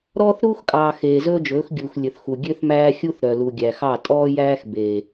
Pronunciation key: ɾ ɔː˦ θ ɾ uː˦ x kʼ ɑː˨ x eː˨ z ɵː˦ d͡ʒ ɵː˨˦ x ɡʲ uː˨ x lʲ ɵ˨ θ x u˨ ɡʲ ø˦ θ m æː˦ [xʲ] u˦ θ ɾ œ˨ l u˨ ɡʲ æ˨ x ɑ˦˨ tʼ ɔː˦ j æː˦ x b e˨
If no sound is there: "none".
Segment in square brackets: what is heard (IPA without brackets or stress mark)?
xʲ